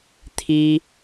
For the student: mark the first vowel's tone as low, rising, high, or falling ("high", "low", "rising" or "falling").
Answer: high